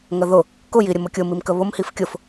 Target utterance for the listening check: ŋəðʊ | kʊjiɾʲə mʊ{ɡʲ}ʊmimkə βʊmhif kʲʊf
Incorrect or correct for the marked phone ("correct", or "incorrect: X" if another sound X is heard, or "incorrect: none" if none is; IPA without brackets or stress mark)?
incorrect: kʲ